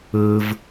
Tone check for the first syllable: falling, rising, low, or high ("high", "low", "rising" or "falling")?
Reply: low